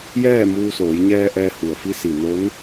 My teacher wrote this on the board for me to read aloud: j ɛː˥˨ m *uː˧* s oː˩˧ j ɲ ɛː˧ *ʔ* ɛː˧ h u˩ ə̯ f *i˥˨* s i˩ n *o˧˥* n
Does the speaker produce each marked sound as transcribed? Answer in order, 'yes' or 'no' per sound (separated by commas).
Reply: yes, yes, no, yes